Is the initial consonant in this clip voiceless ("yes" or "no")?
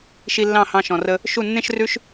yes